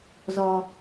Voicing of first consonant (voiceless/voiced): voiced